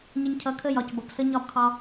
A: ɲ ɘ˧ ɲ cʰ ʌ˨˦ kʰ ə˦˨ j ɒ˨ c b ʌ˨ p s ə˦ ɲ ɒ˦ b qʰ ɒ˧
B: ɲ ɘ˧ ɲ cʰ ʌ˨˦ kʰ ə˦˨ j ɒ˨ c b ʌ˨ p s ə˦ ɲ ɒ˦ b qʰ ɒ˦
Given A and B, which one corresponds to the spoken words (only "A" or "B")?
B